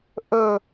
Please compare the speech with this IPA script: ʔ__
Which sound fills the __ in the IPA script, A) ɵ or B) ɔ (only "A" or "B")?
A